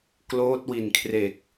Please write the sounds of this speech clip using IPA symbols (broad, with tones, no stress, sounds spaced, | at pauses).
k l oː˦˥ t̚ w i˨˩ n kʰ r e˨˩ k̚